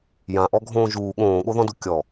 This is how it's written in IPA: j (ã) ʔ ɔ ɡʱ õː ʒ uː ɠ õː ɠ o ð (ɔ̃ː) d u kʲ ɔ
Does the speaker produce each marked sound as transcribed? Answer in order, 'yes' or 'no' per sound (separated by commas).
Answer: yes, no